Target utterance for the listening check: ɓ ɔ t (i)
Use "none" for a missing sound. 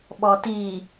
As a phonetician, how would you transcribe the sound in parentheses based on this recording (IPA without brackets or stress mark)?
i